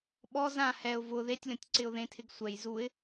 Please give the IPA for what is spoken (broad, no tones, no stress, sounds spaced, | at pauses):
ɓ ɔ z ã h ɛ ʊ̯ v ʊ ð e tʲ lʲ ɔ̃ tʲ ǀ ɪ ʊ̯ ð ẽ tʰ ɪ ɡ sʷ ɛ j z u ɪ̯